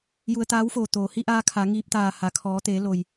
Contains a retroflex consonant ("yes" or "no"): no